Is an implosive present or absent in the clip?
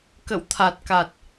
absent